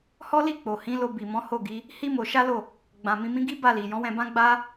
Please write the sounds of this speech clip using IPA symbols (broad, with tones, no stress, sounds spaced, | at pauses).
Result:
h ɔ˦ l i˦˨ k͡p o˨ h ĩ˨˦ l o˧ b i˨ m ɔ̃˨˦ h o˦˨ ɡ i˨˦ | h i˦ m o˧ ʃ a˦ l o˦˨ | ɡ͡b ã˧ m ĩ˧ m ĩ˦ ɡ i˦ b a˦˨ l i˨ j ɔ̃˨˦ w ɛ̃˧ b ã˦ ɡ͡b a˦